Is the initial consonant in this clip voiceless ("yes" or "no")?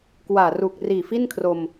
yes